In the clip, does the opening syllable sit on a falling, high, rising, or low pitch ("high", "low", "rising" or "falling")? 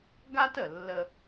high